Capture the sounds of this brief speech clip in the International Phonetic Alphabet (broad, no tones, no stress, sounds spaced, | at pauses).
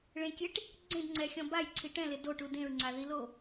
ɭ ẽ kʲ e ʈ | ɡ͡ǀ ẽ d ŋ͡ǀ ɛ xʲ ɔ̃ b a j ǀʰ i ʈ ɛ̃ l ɪ d o ʈ u d ẽ ɹ ŋ͡ǀ a ð i l o